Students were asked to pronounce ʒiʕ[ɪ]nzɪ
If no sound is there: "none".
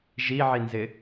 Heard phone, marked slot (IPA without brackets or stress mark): i